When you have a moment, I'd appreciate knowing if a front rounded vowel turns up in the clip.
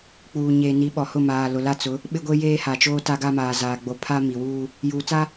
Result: no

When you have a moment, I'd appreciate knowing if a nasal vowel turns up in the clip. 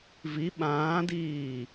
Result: yes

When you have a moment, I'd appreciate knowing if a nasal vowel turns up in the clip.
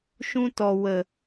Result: yes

